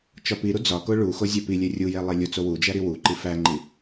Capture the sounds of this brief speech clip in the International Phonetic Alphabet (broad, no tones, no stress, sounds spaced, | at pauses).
t͡ʃ ɒ p i ɾ u d͡z ɒ k o ɭ u x o zʲ æ p i lʲ e rʲ u j e lˠ e lʲ u t͡s o w u d͡ʒ æ ɾ i w u ǃ i f æ ŋ͡ǃ i